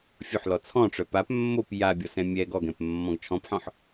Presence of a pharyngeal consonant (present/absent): present